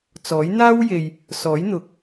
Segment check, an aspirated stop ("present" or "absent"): absent